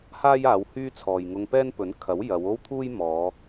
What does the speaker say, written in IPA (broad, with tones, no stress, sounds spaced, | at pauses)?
h aː˥ j aː˨˧ w h yː˥ t͡sʰ ɔː˨ j ŋ ʊ˧ ŋ p ɛː˥ n p ɵ˨˥ n kʰ ɐ˨˥ w j ɐ˨˧ w o˥ w t̪ʰ uː˥ j m ɔː˨˧